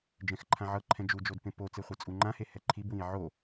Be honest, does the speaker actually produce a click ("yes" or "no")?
yes